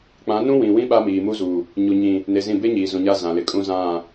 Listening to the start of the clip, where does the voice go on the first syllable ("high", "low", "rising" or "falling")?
rising